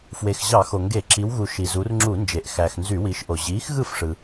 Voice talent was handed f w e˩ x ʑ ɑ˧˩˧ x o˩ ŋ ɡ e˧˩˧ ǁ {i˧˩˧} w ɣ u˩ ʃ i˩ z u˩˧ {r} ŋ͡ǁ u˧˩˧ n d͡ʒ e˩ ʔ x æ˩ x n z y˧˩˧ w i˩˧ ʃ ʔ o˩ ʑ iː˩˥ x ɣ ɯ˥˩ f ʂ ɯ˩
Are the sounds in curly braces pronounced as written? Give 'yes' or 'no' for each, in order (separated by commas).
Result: no, yes